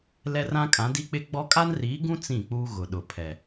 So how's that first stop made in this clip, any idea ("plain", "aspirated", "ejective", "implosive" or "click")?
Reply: ejective